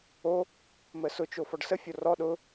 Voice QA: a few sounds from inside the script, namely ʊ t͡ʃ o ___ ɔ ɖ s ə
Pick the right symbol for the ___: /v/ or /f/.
f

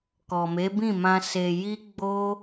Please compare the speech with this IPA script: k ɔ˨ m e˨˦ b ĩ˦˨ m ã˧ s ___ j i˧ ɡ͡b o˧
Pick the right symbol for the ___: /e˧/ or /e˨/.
e˨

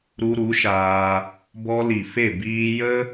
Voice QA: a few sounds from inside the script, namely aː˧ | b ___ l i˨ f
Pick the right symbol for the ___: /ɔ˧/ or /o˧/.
ɔ˧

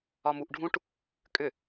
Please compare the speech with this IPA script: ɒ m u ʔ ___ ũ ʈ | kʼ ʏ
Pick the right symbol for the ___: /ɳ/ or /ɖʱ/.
ɖʱ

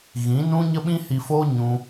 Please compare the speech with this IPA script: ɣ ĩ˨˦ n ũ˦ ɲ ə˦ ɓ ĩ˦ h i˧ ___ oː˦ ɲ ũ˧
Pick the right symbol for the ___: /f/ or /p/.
f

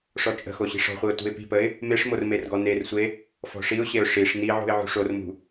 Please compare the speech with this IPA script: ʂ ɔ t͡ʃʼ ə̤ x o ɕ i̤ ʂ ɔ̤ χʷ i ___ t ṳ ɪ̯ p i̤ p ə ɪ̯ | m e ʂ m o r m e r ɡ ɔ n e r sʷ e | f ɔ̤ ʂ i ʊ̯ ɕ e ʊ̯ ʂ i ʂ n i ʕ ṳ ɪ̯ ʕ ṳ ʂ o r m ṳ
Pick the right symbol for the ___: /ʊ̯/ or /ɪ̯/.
ʊ̯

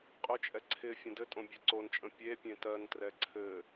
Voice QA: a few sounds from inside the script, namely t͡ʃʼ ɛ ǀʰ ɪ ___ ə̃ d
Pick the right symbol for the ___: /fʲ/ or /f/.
fʲ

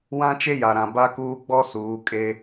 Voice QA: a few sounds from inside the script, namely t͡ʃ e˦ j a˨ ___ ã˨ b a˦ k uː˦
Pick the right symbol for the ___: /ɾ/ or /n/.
ɾ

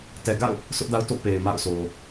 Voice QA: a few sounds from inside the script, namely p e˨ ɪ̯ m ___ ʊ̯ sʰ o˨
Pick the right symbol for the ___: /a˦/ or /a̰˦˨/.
a̰˦˨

